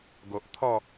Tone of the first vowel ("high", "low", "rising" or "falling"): low